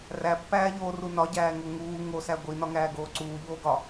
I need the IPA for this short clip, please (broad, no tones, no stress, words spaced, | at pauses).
ræpːæːʎoːru nɒɟæːŋo ŋuː ŋosæ ɡʷinɒŋæːɡoː ǀuːʎoːɡɒ